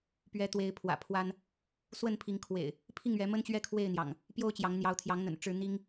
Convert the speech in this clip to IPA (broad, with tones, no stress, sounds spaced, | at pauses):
p ɥ ɛ˨˦ t̪ w e˨˦ ɪ̯ pʰ w ä̰˨˩ pʰ w a˦ n | s w ə˥˨ n pʰ i˨˦ ŋ kʰ w ḛ˨˩ ɪ̯ | pʰ i˥˨ ŋ ɥ ɛ˨˦ m ə˦ n t͡ɕ ɥ ɛ˦ kʰ w e˥˨ ɪ̯ n̪ j ɑ̰˨˩ ŋ | p j o˦ ʊ̯ t͡ɕ j ɑ˨˦ ŋ n̪ j ɑ˨˦ ʊ̯ t̪ʰ j ɑ˨˦ ŋ n̪ ə̰˨˩ n ʈ͡ʂ ɻ̩˦ n̪ i˦ ŋ